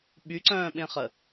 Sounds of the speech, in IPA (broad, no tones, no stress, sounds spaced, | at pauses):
ɓ y ǀ œ̃ː ɓ ẽ χ ə